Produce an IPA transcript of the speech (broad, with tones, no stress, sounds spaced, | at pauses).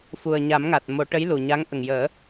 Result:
f u˨˩ ə̯ ɲ a˨˩˦ m ŋ a˨˩ t̚ m o˨˩˦ ʈ ə˧˥ j l u˨˩ ɲ a˧˥ ŋ ʔ ə˨˩ ŋ j əː˨˩˦